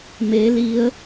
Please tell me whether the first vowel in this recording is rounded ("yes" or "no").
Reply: no